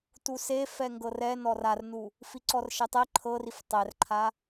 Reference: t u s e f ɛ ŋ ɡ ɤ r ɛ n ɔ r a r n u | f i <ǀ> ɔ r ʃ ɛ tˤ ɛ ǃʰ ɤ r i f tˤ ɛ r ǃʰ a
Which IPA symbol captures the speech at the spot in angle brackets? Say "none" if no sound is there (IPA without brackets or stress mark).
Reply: ǀ